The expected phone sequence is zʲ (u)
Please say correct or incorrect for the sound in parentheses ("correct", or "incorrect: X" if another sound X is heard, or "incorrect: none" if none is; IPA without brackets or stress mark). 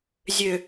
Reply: incorrect: ø